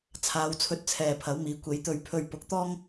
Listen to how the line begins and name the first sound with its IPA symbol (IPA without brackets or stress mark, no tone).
t͡sʰ